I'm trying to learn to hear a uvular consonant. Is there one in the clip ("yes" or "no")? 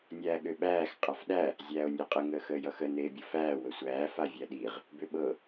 yes